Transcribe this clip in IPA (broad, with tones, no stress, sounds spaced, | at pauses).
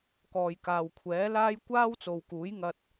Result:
k ɔː˨ j k aː˨ w kʷʰ ɛː˨˥ l aː˥ j kʷ aː˥ w t͡s o˨ w k uː˨˥ j ŋ ɐ˧ t̚